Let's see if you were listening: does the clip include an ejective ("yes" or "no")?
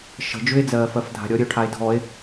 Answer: no